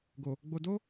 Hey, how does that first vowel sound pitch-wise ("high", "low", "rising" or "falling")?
low